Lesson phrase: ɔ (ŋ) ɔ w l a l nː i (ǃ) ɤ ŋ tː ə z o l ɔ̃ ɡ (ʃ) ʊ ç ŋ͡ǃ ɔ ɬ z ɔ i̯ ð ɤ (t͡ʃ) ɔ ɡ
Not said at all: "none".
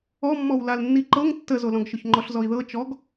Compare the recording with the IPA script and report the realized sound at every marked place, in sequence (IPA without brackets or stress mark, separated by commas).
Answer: mː, ǃ, ʃ, t͡ʃ